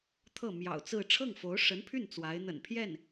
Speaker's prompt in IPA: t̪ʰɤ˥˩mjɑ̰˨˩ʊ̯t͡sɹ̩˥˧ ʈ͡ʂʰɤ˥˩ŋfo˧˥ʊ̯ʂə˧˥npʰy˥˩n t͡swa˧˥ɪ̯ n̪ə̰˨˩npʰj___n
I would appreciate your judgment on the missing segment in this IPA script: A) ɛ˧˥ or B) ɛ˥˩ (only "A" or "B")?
B